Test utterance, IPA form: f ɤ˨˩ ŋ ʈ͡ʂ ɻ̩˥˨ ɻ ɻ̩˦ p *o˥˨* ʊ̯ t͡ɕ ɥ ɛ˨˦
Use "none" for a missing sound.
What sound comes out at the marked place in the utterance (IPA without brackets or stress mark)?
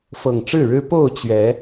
o˥˨